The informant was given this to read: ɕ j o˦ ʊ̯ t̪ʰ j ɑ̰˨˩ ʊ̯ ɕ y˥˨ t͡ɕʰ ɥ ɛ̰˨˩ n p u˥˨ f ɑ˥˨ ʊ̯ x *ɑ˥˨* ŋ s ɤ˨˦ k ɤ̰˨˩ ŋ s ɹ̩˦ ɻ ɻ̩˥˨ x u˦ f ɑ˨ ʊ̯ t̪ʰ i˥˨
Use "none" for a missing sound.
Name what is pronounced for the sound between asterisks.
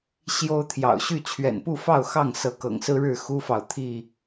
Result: ɑ˥˨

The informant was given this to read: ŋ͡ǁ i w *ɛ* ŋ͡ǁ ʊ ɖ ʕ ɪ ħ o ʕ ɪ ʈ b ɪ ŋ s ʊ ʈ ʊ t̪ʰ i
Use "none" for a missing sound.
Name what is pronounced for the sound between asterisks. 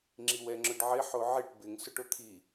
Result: ɛ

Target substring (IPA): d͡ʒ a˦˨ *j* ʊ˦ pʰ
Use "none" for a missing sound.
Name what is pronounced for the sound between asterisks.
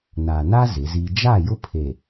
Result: j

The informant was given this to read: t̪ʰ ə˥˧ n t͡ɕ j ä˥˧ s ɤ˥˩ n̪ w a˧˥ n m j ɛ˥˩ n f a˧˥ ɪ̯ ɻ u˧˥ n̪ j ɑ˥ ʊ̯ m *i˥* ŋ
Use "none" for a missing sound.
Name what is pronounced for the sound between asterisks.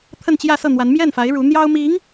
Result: i˧˥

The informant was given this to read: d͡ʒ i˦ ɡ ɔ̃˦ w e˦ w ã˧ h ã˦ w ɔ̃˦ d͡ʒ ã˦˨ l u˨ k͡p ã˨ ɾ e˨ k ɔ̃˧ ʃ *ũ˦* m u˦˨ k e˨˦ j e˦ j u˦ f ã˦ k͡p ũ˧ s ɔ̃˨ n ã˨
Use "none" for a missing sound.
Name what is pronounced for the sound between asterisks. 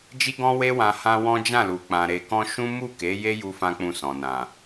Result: ũ˦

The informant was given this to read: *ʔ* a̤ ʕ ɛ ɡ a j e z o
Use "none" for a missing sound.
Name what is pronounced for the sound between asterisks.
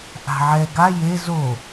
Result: ʔ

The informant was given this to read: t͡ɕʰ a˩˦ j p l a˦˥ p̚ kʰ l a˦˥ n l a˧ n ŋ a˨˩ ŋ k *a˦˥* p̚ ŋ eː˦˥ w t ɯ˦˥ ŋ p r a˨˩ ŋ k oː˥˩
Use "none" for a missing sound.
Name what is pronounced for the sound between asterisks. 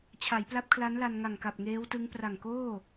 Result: a˨˩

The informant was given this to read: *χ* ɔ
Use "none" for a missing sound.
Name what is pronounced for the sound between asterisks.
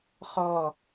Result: χ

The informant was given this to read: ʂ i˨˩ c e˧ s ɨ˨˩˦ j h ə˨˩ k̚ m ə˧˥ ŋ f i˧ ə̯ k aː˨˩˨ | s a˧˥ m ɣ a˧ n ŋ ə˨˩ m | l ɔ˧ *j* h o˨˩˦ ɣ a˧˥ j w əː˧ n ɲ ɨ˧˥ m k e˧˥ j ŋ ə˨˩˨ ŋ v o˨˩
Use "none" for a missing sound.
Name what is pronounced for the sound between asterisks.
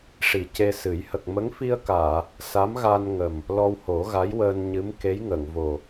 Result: w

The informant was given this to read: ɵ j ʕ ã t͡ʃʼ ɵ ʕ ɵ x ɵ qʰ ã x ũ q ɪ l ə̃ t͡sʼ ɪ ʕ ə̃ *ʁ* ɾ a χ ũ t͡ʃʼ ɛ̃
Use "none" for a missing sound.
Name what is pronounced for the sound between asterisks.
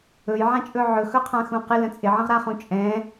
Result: ʁ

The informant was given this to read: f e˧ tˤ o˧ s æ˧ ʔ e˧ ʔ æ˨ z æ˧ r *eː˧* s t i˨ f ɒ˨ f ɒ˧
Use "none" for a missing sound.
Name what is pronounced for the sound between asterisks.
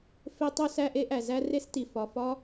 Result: e˧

